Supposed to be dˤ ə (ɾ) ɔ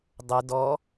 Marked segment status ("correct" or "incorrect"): incorrect